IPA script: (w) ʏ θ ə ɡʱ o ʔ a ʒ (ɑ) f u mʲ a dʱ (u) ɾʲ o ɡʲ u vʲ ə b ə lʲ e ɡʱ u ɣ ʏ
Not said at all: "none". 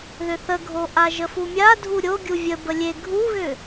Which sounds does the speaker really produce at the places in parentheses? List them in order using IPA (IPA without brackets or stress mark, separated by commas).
ð, ə, u